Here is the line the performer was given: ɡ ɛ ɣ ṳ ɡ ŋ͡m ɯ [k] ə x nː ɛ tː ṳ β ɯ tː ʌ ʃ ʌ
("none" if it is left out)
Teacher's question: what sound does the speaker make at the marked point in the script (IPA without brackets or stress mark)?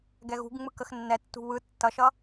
k